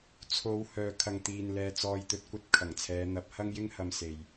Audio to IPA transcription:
t͡sʰ o˨˧ w h œː˨ kʰ ɐ˨ ŋ t̪ iː˨ n l ɛː˧ t͡s ɔː˧ j t̪ ɵ˧ t̚ kʷ ɐ˥ t̚ kʰ ɐ˨˩ ŋ t͡sʰ ɛː˨˧ n̪ ɐ˨˥ p̚ h ɐ˥ ŋ j ɪ˥ ŋ h ɐ˧ m s e˨ j

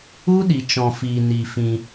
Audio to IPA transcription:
u˦ ɗ i˧ t͡ʃ ɔ̃˧ f iː˧ n i˧ f ĩ˧

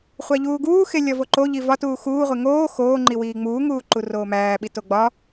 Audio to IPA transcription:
χʷ æ ʎ uː ɡ uː x e lʲ ɒ v o ǃ o ʎ i v ɒ t uː x uː ʁʷ e ŋ oː x oː ŋ͡ǃ i w iː ŋ͡m uː ŋ uː ǃ u r oː m æː ɓ i t o ɡ͡b ɒ

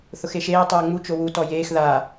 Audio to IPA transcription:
θ ʊ x e ʃ eː tˤ oː ŋ͡m u t͡ʃ o w u t ɔ j eː x ð a

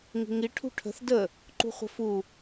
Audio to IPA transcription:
ŋ i̤ ŋ i ʈʰ ṳ ʈʰ ə̤ θ d ə | ǃ ṳ χʷ ə̤ f u

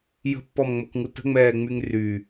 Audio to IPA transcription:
j ə̤ pː ɔ m ŋ͡m o k ŋ u t ə̤ ŋ͡m ɛː ŋ͡m y ŋ r y

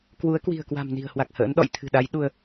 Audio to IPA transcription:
k w u˨˦ ə̯ k w i̤˨˩ ə̯ k w a̤˨˩ m n i̤˨˩ ə̯ h w a˨˩ k̚ h ə̰ː˧˥ n ɗ ɔ̰˧˨ j t̪ʰ ɨ̤˨˩ ɗ a˨˦ j ɗ u˧ ə̯

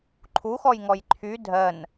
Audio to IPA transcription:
ǃʰ u x ɔ j ŋ ɔ j ǃʰ y dʱ ɜ n

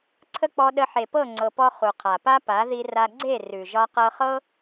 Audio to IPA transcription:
ǀʰ ə˦ k͡p ɔ˧ ɗ ə˧ ħ e˨ p ɤ˦˨ ŋ͡ǀ ɤ˨ p ɔ˧ χ u˨ qʰ a˨ p a˦ p a˨˦ ð i˧ r a˧ ɡ͡ǀ e˦˨ r ʉ˨ ʒ ɒ˧ q ɤ˧ χ ɤ˦

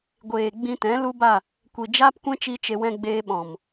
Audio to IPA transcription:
ɡʷ eː˨ ɡ͡b ĩ˧ t ɛ̃˨˦ l u˦ b a˦˨ | kʷ i˨ d͡ʒ aː˦ p kʷ ɛ̃˦ t͡ʃ i˦ t͡ʃ e˧ w ɛ̃˧ ɡ͡b eː˧ ɓ ɔ̃˨ m

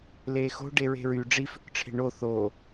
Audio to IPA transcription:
l eː x o̤ ɖ e ɹ e̤ ɹ y ɖ͡ʐ i f ʏ k ʈ͡ʂʰ e̤ ɳ o θ o

